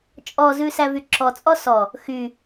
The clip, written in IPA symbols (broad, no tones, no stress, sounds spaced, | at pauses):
t͡ʃʼ ɔ z ʉ s æ v y ǁ ɔ t͡sʼ ɔ s ɔ | x y